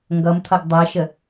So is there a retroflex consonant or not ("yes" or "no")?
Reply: no